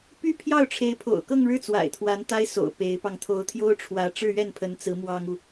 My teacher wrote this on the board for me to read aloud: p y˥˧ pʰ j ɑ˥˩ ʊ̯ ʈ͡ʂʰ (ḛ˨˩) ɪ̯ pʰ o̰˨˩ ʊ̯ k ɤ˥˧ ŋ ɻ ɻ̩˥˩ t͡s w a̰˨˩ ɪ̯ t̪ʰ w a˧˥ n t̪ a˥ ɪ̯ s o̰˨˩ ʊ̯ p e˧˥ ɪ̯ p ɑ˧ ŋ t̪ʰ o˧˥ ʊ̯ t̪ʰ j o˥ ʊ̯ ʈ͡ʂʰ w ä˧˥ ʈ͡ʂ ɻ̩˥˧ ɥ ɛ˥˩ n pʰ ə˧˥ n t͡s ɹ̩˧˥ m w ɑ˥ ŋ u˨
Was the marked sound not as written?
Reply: yes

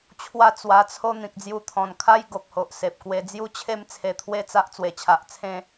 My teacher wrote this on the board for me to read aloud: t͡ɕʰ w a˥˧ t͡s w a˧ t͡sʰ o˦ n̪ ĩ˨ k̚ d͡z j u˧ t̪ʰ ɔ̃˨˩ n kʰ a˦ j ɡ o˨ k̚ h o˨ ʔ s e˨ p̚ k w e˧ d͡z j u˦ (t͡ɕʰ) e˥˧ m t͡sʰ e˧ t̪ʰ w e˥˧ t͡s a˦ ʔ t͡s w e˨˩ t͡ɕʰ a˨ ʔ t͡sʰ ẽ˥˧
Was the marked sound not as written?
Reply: no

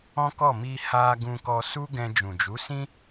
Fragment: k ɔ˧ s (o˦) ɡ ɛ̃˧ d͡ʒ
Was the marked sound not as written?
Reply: yes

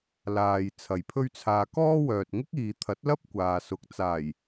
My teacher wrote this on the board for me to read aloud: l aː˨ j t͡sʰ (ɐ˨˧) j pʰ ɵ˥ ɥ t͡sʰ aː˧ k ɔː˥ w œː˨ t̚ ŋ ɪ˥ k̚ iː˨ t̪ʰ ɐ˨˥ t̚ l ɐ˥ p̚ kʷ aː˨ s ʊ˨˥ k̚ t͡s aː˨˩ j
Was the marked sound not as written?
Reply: yes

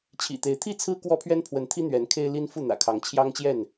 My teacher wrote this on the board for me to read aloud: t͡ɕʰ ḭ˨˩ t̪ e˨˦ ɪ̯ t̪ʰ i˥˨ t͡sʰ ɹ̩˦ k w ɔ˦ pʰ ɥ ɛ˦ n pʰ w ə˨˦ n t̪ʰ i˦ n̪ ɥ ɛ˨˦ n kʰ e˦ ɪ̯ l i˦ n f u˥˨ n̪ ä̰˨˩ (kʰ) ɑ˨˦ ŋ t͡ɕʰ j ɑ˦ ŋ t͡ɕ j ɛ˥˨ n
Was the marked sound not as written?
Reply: no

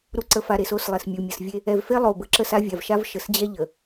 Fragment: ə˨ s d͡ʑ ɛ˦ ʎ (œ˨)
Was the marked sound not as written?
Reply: yes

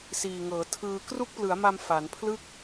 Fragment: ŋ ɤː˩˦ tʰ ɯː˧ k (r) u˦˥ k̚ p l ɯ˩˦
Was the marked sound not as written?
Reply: no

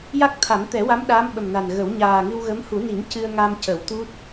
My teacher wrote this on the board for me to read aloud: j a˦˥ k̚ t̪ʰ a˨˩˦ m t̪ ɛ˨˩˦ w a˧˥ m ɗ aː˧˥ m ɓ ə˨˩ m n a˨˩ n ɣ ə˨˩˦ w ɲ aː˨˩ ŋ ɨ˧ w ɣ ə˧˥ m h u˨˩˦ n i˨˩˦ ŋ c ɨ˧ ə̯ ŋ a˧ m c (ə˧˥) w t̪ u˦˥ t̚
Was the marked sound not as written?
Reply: yes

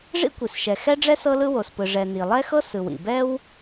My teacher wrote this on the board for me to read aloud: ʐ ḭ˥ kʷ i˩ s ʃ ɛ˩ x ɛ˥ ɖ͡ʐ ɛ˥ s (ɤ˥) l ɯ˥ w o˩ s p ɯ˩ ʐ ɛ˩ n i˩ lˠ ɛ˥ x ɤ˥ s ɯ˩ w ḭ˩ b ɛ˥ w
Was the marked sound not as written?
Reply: no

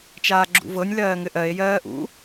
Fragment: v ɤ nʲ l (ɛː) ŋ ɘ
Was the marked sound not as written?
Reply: yes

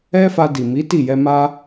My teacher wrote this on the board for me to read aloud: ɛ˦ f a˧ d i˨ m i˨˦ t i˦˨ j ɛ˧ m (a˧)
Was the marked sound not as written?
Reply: no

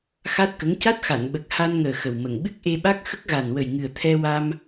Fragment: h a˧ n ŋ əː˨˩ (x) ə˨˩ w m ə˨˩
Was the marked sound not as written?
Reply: no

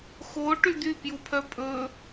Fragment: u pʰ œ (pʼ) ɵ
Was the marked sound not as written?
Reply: no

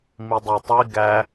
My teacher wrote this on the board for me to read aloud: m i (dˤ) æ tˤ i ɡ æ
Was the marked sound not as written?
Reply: no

